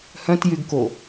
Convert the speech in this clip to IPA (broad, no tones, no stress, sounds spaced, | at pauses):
h œ̃ t j y ɡ k o